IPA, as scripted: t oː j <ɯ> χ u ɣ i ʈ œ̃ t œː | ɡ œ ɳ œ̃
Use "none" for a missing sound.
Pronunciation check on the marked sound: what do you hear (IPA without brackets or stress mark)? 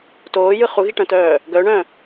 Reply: ɯ